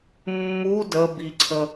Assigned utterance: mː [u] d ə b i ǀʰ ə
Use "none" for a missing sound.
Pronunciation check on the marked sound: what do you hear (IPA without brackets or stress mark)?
u